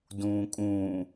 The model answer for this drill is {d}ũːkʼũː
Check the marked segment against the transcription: correct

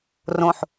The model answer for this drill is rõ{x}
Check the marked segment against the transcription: incorrect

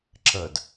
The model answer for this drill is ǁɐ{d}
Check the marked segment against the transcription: correct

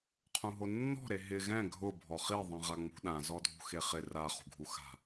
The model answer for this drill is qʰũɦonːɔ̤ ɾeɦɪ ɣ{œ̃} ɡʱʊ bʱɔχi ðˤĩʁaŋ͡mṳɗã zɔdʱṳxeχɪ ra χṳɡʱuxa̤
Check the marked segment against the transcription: incorrect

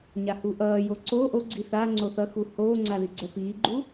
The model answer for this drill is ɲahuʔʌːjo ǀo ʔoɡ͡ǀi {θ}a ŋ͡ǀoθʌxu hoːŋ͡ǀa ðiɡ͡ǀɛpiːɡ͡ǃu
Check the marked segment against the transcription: correct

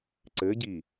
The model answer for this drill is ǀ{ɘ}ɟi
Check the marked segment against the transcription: correct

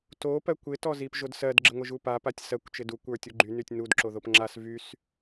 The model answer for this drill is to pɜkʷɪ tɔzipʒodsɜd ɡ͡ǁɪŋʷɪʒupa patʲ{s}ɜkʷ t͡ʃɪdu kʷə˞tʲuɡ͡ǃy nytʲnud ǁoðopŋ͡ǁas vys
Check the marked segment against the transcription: correct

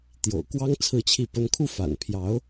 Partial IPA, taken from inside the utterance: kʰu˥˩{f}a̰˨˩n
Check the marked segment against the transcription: correct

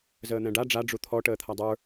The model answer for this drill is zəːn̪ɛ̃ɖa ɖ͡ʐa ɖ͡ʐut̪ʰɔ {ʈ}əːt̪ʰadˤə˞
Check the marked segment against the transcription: correct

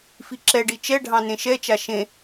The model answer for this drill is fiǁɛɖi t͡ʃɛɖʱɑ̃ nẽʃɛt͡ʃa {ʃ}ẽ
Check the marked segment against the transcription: correct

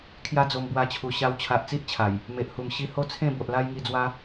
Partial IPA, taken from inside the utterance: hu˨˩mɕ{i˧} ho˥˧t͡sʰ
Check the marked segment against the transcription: correct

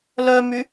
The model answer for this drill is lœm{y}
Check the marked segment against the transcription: correct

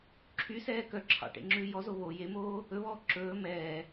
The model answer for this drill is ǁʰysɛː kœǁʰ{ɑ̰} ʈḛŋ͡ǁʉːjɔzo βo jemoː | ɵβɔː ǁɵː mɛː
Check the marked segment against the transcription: correct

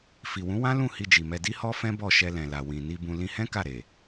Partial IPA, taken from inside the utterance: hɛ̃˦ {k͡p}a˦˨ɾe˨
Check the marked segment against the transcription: incorrect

